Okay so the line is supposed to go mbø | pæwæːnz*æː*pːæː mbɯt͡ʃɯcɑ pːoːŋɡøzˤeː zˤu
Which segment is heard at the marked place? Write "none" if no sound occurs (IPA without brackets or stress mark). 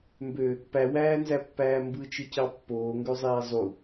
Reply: æ